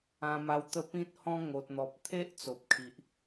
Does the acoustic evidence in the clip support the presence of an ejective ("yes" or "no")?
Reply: no